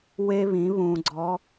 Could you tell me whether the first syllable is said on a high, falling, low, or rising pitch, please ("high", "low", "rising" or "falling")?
high